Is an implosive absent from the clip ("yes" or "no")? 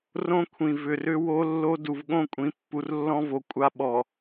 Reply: no